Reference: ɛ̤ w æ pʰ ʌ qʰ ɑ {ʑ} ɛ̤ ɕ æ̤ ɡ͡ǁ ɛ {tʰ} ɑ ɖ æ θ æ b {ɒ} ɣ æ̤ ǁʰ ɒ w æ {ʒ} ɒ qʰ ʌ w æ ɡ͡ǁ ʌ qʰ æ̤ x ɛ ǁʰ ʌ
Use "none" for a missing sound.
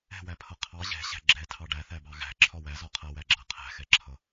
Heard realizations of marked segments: ʑ, tʰ, ɑ, z

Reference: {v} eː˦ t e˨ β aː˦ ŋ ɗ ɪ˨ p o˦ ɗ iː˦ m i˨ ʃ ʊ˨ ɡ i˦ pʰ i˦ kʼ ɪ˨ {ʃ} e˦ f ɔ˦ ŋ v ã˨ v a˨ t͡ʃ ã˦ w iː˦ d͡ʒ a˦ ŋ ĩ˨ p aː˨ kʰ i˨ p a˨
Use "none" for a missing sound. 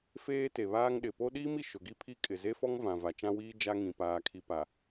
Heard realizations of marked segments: f, z

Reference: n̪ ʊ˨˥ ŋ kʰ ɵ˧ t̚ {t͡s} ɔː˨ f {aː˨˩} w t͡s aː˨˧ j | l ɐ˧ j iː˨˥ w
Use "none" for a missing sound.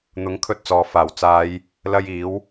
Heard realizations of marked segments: t͡s, aː˨˩

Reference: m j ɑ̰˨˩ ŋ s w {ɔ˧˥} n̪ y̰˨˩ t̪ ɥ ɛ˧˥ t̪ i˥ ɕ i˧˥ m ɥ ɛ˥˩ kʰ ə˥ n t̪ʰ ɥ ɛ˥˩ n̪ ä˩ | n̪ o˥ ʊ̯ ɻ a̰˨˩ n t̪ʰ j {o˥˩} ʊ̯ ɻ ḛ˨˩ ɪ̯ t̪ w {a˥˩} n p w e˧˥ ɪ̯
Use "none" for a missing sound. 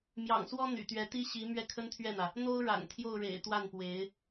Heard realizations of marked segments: ɔ˥, o˥˩, a˥˩

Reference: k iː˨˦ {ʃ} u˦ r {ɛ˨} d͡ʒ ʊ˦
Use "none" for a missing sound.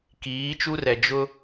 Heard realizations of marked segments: t͡ʃ, ɛ˨

